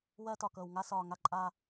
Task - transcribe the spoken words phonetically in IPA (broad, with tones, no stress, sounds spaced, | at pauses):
w ɜ˦ t ɒ˨ k ɤ˨ w ŋ a˦ s ɒː˨ ŋ a˦ ǃʼ a˦